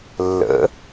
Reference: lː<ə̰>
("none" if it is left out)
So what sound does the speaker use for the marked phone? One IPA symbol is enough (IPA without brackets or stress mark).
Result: ə̰